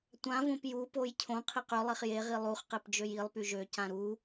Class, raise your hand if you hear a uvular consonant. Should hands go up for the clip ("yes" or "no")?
yes